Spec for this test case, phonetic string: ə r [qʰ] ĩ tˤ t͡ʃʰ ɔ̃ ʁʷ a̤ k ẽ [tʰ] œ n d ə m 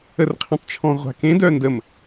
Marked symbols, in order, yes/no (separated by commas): yes, no